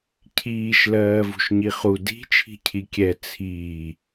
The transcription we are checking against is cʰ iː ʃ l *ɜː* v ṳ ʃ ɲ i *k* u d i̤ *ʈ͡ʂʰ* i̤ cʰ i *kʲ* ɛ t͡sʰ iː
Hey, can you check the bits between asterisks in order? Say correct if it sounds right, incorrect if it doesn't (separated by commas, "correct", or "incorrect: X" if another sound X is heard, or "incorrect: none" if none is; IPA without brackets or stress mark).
correct, incorrect: χ, incorrect: t͡ʃʰ, correct